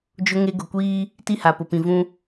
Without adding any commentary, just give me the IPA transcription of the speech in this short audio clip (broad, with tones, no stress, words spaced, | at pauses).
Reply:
d͡ʒʊ˦ŋe˦ ɡʊ˨kʷiː˦ | ti˦˨ha˨pʊ˨pĩ˨ vũ˦